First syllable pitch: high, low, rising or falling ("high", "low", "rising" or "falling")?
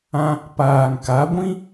high